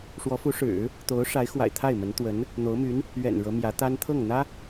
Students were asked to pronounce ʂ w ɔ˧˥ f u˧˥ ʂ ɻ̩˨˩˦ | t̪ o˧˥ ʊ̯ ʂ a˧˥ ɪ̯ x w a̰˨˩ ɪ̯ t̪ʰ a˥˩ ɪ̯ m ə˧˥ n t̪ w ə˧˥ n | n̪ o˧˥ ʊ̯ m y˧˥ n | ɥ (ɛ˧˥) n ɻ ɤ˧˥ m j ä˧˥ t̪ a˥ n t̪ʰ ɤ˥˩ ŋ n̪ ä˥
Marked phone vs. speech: incorrect: ɛ̰˨˩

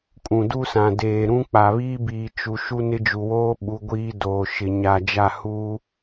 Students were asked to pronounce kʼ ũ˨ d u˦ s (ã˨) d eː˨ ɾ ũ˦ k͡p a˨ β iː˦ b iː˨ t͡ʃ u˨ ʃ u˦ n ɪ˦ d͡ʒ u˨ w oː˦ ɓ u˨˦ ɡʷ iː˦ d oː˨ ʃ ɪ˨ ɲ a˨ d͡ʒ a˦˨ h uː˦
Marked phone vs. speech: correct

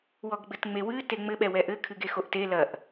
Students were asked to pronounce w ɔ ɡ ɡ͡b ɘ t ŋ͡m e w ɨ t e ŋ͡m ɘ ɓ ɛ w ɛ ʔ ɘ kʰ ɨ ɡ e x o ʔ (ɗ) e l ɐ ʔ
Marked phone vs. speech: incorrect: t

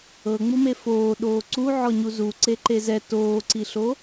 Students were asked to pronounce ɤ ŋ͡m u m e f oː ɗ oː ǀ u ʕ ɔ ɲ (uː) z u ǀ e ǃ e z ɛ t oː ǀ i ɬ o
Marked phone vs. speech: incorrect: u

